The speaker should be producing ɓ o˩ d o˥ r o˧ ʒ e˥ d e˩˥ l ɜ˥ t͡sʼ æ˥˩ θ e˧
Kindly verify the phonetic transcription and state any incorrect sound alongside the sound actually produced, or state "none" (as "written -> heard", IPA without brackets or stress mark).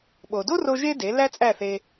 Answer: ɜ˥ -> æ˥